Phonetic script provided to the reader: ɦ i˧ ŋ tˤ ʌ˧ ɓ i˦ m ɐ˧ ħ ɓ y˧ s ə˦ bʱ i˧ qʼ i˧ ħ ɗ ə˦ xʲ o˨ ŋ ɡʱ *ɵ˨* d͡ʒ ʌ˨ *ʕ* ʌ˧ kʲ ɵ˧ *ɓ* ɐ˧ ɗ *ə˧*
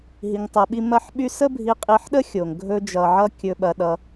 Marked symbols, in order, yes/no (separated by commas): no, yes, yes, no